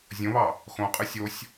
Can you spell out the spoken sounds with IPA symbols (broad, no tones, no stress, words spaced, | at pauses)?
zʲõβɑ | xõqʼɯ sʲosʲ